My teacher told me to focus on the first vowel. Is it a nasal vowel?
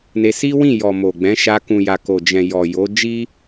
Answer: no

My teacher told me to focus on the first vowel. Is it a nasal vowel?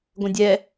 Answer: yes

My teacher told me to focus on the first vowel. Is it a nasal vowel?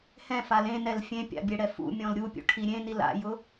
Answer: yes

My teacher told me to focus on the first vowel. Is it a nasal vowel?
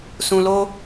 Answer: yes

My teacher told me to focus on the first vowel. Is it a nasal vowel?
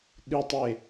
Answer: no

